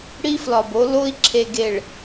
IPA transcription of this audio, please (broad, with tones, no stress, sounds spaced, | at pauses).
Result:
ɽ i˦ f l ɒ˨ b o˦ l o˦ i̯ ǁʰ e˨ ɡ e˨ ɭ